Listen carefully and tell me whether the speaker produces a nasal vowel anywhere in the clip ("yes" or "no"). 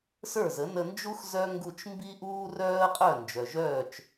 no